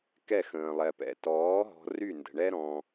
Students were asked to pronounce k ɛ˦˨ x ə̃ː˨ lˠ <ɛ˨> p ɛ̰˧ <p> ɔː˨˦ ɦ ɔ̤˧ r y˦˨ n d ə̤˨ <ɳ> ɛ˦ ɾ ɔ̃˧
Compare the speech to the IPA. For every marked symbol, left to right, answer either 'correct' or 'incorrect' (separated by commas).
correct, incorrect, correct